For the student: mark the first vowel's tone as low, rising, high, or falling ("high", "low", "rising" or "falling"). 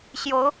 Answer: rising